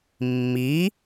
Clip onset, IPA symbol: mː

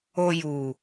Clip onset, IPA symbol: o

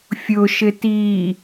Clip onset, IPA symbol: fʲ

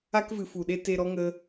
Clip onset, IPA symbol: a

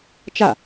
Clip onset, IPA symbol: t͡ʃ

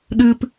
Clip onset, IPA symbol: ɗ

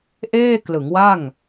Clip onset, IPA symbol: ʔ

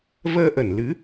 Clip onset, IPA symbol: v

